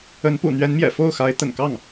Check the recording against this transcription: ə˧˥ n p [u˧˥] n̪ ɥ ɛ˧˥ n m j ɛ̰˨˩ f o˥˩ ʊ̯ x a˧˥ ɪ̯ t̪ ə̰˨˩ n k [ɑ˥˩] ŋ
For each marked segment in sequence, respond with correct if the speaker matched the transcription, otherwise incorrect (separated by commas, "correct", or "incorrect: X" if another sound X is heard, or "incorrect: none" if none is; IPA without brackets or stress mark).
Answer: incorrect: ṵ˨˩, correct